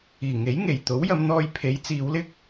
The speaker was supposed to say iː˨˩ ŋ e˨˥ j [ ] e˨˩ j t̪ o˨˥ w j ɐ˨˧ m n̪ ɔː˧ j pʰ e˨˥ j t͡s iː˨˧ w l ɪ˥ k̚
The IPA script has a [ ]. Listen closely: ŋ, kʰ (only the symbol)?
ŋ